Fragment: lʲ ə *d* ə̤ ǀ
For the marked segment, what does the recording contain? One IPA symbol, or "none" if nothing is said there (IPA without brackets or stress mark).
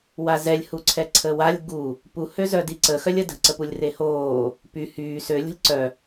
d